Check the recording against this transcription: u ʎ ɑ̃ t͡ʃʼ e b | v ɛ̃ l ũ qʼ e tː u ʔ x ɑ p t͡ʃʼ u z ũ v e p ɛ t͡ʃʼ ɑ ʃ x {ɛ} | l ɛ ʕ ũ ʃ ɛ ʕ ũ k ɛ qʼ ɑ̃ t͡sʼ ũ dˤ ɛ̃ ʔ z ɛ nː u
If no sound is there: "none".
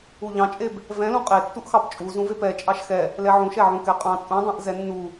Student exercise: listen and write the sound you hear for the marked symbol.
ɛ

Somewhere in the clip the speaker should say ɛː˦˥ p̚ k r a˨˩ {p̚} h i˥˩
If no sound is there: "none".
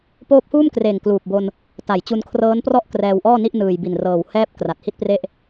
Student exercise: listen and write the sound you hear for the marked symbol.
t̚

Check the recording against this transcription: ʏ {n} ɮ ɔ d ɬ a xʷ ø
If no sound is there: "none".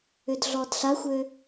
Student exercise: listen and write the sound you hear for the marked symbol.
d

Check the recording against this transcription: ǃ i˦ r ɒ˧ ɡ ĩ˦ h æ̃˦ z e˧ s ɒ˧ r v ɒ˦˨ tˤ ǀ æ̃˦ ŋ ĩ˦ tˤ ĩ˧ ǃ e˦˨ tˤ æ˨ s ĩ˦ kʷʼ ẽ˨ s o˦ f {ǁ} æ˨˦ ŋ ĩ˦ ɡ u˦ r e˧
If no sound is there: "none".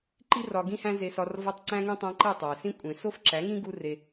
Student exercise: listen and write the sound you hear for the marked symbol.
ǁ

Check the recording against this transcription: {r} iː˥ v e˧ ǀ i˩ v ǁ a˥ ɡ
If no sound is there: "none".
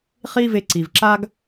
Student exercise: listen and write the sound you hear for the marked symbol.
χ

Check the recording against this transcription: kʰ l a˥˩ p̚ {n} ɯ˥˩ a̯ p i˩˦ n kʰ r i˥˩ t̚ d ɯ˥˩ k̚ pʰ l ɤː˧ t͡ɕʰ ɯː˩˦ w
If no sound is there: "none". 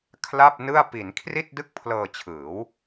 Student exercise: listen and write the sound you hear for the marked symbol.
n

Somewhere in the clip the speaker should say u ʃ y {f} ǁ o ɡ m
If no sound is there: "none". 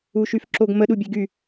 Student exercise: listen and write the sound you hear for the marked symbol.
f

